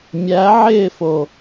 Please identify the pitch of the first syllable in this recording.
rising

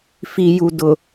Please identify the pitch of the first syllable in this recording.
low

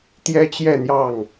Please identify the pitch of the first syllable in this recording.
high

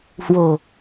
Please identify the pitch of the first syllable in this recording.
low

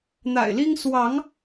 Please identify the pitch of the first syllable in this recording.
low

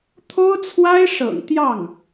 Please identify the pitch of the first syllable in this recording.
high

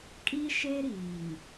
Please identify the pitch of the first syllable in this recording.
high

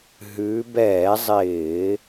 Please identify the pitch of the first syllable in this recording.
rising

